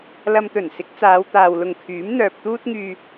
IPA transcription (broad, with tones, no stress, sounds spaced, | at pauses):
l ɐ˧ m t̪ ɵ˨˩ n s ɪ˨˥ k̚ t͡s aː˨˧ w t̪ aː˨ w l ʊ˨ ŋ kʰ yː˨˥ m n̪ œː˨ p̚ t̪ uː˥ t̚ ŋ yː˧